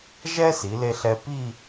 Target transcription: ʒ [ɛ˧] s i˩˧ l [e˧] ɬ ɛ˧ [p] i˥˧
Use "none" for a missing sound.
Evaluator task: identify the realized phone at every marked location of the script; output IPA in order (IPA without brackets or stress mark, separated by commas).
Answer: ɛ˥, e˧, p